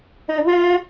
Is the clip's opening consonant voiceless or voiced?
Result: voiced